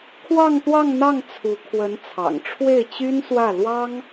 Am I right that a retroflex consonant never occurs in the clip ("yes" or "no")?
no